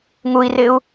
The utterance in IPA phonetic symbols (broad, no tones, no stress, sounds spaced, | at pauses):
ŋ u i̯ r ɪ u̯